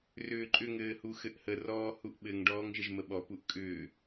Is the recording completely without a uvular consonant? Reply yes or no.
yes